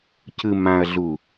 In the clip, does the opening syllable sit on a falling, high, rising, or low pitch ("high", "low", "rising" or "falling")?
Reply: low